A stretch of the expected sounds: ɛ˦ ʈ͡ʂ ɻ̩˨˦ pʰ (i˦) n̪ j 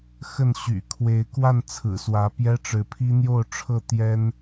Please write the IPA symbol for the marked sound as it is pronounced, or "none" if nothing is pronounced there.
i˦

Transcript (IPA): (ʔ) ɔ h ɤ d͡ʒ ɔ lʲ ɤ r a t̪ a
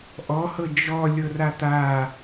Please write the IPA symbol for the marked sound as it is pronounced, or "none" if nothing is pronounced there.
ʔ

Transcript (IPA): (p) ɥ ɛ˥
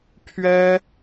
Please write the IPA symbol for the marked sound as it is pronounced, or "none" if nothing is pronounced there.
pʰ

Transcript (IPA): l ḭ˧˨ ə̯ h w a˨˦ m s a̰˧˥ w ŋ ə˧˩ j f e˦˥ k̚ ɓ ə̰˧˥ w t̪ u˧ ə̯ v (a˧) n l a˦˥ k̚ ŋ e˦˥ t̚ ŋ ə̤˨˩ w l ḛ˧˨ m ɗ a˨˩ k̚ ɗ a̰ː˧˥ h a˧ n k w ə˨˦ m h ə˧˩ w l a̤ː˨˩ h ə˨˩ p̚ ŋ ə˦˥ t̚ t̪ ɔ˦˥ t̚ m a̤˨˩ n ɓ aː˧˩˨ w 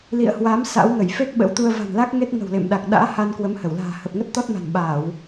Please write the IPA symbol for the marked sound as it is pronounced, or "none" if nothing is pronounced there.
a̤˨˩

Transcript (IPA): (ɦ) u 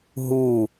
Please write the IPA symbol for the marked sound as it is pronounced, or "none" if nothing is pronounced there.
ɦ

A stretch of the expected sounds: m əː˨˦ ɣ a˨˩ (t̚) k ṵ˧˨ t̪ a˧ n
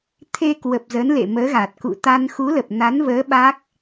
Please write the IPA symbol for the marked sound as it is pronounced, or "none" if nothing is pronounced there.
t̚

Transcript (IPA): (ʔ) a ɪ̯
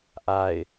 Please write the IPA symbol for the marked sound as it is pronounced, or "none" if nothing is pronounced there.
ʔ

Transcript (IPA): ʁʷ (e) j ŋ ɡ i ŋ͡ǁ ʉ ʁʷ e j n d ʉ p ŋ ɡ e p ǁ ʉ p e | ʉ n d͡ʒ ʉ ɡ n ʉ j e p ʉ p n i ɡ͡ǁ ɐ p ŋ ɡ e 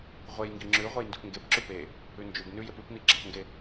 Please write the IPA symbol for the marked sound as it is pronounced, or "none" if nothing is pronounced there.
e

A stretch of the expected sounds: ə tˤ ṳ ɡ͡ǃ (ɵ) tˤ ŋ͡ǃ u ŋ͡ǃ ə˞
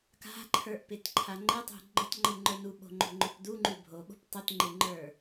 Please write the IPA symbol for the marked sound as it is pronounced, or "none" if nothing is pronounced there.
ɵ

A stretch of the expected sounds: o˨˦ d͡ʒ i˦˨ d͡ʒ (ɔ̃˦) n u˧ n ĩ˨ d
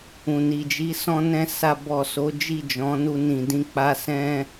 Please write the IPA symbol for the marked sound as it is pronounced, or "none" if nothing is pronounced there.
ɔ̃˨˦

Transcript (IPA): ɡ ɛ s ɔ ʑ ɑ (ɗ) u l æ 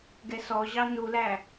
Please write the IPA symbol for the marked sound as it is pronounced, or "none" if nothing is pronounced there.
n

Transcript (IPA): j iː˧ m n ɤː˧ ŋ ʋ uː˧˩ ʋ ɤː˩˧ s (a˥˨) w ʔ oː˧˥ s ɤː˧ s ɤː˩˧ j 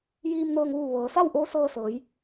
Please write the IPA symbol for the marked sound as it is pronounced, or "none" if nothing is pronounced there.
a˥˨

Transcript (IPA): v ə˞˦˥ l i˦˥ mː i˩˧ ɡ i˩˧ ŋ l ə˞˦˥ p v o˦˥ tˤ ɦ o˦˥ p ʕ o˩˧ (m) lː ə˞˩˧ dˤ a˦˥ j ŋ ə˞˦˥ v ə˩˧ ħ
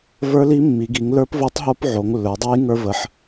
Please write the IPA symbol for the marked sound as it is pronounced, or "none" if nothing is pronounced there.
ŋ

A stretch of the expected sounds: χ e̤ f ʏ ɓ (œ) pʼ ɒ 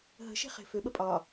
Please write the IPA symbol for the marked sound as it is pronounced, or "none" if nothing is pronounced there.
ə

